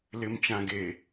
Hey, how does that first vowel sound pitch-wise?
low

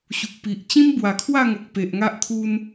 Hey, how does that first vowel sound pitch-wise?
low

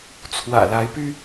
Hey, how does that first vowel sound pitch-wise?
low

